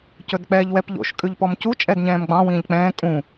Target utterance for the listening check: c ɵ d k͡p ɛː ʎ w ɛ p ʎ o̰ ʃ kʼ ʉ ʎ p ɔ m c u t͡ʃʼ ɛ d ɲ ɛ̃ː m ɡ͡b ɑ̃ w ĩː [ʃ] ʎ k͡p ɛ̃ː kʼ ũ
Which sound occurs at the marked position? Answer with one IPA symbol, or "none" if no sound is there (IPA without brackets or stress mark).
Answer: none